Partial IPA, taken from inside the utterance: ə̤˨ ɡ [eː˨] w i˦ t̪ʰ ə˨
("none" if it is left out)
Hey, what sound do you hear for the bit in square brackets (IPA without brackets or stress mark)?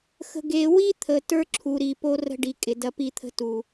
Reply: eː˨